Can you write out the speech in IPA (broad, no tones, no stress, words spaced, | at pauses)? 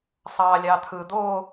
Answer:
sˤɑːlʲɑt̪ʰɯ d̪o